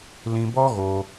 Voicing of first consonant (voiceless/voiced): voiced